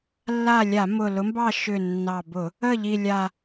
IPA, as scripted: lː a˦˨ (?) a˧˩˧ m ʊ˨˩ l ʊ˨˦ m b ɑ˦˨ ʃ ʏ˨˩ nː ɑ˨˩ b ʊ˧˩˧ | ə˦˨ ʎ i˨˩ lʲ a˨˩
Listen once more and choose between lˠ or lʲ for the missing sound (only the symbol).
lʲ